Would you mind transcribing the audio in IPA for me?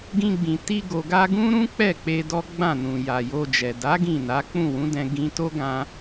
ɡ ĩ˧ ɡ͡b ĩ˨ t i˧ ɡ o˨ ɡ a˧ ɡ ũ˦ ɾ ũ˦ k͡p ɛ˦˨ k͡p e˧ d ɔ˦ ɡ͡b ã˦˨ n ũ˨ j a˨ j o˧ d͡ʒ ɛ˨ d a˨˦ ɡ ĩ˦˨ n a˨˦ k͡p ũ˦˨ w ũ˨˦ d ɛ̃˧ ɡ ĩ˧ t o˦ ɡ ã˧

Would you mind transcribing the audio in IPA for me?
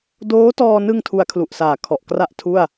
d oː˦˥ t ɔː˧ n ɯ˧ ŋ tʰ u˦˥ a̯ kʰ l u˨˩ ʔ s aː˨˩ kʰ ɔ˨˩ ʔ k r a˥˩ ʔ tʰ u˥˩ a̯

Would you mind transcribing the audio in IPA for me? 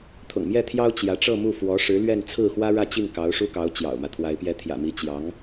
t̪ʰ ʊ̰˨˩ ŋ m j ɛ˥˩ t̪ʰ j ɑ˥ ʊ̯ t͡ɕ j ä˧˥ ʈ͡ʂ ɤ˥˧ m u˥˩ f w ɔ˧˥ ʂ ɻ̩˧˥ l ɥ ɛ˥˧ n t͡sʰ ɹ̩˥˩ x w ä˥ ɻ ä˥˧ t͡ɕ i˥˩ ŋ k ɑ˧˥ ʊ̯ ʂ u˥ k ɑ˧˥ ʊ̯ t͡ɕ j ɑ̰˨˩ ʊ̯ m ä˦ t̪ʰ w a˧˥ ɪ̯ p j ɛ˧˥ t̪ʰ j ä̰˨˩ m i˧˥ t͡ɕ j ɑ˧˥ ŋ

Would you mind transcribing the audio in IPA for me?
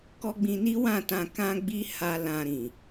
k ɔ˦ ɡ͡b ĩ˧ n i˦ w ã˦˨ t ã˧ k ã˦ ɡ͡b i˦ h a˧ l ã˧ ɾ ĩ˨

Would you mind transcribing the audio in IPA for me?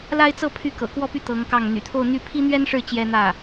l a˥ ɪ̯ t͡s ɤ˥˧ pʰ y˥˩ k ɤ̰˨˩ k w ɔ˥˧ p y˥˩ t̪ ɤ˧˥ ŋ k ɑ˥˩ ŋ n̪ y̰˨˩ t̪ʰ o˥˧ ʊ̯ n̪ y˥˩ pʰ i˥ n̪ ɥ ɛ˥ n ʂ ɻ̩˥˩ t͡ɕ j ɛ˥ n̪ ä˥˩

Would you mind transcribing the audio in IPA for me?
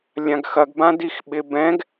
lʲ ã ɡ x ɐ ɡ b ã d i x ɓ ɪ b ɛ̃ ɡ

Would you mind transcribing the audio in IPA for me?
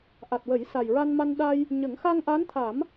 ʔ a˨˩ t̚ w ə˨˩˦ j s a˨˩ j ɹ a˧ n m a˧ n ɗ a˧ j | ɲ ə˨˩˦ ŋ x a˧ ŋ ʔ a˧˥ n t̪ʰ a˨˩˦ m

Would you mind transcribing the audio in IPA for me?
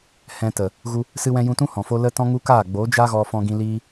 h ɛ̃˧ t ə˨ | ɣ u˧ | s ɨ˧ w ɛ̃˧ j ũ˧ t ũ˦ h ɔ̃˨ f o˧ l ə˧ t ɔ̃˦ ŋ u˦ k aː˦˨ ɡ͡b o˨˦ d͡ʒ a˦ ɣ ɔ˧ f ɔ̃˧ ɡ ĩ˧ l iː˦

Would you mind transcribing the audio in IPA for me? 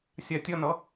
sʲ a tʲ ʌ n ʌ

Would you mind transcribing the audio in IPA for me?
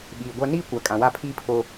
ɓ iː˨ ɡʷ a˦ n iː˦ kʷ a˨ kʼ ã˨ w a˦˨ pʰ iː˦ pʰ o˦

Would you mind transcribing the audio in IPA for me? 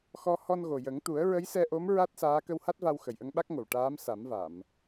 x ɔ˧ h ɔ˧ n ɣ o˨˩ j ə˨˩˦ ŋ t̪ u˨˩˦ ə̯ ɹ ə˧˥ j s ɛ˧ ʔ o˧˥ m ɹ a˦˥ t̚ s aː˧˥ k ə˧ w h a˦˥ t̚ v a˧ w x ə˨˩ j ʔ ə˧ ŋ ɓ a˦˥ k̚ ŋ o˨˩ w ʈ aː˧˥ m s a˨˩˦ m v a˨˩˨ m

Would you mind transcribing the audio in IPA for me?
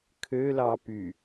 kʰ ø l ɑ p y

